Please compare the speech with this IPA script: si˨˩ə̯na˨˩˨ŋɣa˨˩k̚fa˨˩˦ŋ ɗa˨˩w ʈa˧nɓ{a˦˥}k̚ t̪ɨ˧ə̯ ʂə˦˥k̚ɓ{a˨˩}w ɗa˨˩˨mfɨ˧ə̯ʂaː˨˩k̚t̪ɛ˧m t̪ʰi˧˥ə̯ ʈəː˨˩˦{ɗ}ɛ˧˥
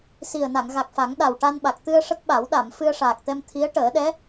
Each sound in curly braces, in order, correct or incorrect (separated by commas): incorrect, incorrect, correct